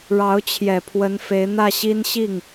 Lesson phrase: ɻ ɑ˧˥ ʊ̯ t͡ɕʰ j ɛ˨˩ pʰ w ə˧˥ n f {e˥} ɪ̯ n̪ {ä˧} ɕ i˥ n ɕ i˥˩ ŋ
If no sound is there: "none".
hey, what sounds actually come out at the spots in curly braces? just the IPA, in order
e˧˥, ä˥˩

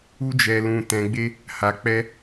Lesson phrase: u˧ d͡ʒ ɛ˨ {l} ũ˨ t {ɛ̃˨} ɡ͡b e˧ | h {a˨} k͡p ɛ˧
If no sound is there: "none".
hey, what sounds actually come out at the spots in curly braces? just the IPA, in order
l, ɛ̃˨, a˨

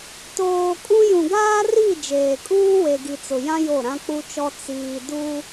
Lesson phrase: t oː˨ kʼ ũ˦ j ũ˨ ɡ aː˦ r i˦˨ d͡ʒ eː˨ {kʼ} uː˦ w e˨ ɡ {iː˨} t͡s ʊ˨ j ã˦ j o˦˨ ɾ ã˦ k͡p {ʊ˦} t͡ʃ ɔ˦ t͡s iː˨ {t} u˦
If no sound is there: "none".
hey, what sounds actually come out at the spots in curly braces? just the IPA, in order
kʼ, i˨, u˦, d

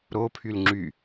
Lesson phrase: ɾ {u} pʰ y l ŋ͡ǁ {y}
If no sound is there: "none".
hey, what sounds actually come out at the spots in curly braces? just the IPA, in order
o, y

